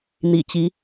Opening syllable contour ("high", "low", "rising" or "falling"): low